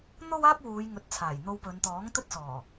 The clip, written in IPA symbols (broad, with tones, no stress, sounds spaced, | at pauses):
n̪ o˥ w aː˥ p̚ w uː˨˧ j ŋ ɵ˨˥ t̚ t͡sʰ aː˨˩ j n̪ o˧ w p ɵ˨˧ n t̪ ɔː˨˥ ŋ t̪ ɵ˥ t̚ s ɔː˨˩